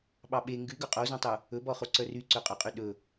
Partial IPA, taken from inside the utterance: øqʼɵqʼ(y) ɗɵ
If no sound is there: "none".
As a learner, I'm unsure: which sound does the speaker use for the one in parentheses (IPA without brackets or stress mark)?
y